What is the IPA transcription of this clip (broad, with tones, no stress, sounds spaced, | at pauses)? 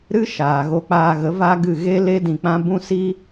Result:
ɾ ɨ˦ ʃ aː˨ ɣ o˧ k͡p aː˧ ɣ ə˨˦ v a˦ ɡ ɨ˦˨ ɣ e˦ l e˦ d ĩ˧ k͡p ã˦ b ũ˦ s i˦